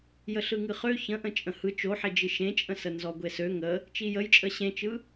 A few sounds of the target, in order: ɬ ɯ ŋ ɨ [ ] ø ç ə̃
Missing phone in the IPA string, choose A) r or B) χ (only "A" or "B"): B